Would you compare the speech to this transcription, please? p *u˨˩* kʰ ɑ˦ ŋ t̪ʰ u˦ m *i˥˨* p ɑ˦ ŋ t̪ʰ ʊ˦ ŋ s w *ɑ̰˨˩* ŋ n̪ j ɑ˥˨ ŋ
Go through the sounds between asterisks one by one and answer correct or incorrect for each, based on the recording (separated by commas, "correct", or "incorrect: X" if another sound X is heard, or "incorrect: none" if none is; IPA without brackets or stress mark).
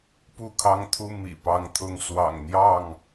incorrect: u˥˨, incorrect: ḭ˨˩, correct